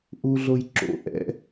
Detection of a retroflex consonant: absent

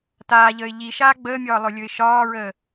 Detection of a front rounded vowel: absent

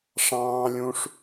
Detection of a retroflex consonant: present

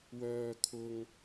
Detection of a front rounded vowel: present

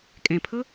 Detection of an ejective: present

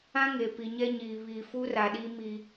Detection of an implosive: present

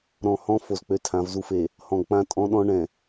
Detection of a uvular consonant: absent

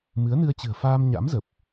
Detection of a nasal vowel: absent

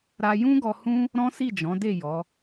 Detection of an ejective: absent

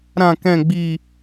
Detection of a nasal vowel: present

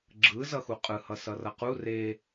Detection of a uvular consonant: present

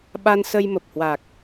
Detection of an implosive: present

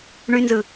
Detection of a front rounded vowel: present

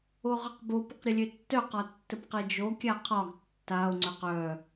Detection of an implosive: absent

